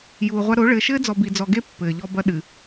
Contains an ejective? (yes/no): no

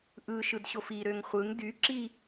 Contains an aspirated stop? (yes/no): no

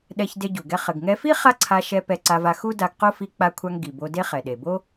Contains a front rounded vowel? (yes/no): no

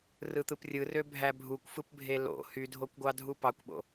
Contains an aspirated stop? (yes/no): no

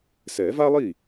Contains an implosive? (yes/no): no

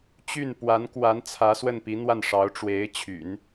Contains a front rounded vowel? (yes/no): yes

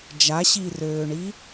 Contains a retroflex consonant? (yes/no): yes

